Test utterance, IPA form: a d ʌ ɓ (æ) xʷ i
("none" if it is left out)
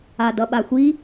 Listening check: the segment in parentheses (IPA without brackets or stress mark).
a